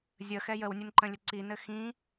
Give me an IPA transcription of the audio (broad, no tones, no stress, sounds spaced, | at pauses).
zʲ ə x ɛ j ə w nʲ ɘ n ǃ ə̃ lʲ ə ǀ i n ɘ x ĩ